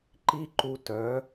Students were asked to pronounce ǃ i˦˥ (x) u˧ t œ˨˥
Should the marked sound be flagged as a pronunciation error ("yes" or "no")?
yes